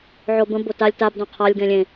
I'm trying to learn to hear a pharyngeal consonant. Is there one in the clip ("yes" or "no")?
yes